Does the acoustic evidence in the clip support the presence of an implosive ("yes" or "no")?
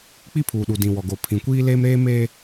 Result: yes